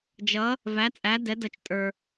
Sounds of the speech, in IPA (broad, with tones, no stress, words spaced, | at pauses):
d͡ʒʌ˨˥ | væ˨˥t͡sʼæ˨˥ dɛ˨˥dʌ˧t͡ʃ tʼə˞˧